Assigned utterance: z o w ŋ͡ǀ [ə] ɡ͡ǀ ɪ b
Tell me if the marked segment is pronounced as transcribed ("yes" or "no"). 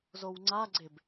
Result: no